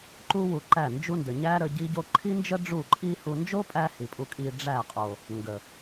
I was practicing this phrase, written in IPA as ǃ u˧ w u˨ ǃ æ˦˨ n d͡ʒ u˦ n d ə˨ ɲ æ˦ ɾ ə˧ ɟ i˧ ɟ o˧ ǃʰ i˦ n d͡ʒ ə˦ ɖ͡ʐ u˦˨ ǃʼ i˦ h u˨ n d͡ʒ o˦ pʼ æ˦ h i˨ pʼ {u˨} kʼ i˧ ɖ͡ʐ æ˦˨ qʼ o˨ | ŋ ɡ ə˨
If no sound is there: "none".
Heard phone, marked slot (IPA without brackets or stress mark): u˧